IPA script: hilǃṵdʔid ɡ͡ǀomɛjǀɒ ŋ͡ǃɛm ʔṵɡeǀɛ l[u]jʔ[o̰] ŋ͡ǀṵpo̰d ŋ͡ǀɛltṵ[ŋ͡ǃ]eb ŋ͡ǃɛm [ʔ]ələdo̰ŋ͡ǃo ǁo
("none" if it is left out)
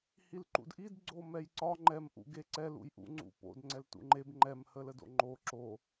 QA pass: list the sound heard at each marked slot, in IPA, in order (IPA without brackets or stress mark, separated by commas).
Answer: ṵ, ṵ, ŋ͡ǃ, h